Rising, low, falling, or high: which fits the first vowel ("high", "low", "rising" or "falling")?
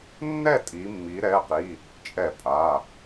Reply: falling